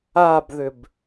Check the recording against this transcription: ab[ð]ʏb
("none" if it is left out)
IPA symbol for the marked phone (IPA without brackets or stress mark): ð